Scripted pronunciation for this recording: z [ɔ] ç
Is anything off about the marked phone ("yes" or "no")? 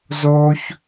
yes